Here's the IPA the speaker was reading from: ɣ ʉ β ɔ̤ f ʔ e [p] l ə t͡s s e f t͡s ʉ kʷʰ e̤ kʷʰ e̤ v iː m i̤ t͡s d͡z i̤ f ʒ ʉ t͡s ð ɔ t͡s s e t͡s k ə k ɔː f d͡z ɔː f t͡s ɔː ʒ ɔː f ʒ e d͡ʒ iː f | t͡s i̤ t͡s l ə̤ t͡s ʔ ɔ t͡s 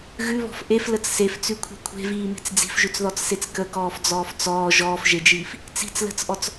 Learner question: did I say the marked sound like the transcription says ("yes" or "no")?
no